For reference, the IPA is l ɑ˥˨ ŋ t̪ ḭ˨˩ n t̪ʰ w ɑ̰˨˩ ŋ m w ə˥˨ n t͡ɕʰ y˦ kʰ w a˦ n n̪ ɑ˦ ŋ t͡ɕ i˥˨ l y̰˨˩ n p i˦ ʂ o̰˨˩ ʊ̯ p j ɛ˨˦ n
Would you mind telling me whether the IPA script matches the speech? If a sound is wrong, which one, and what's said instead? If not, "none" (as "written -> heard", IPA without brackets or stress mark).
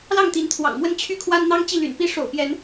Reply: ḭ˨˩ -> i˨˦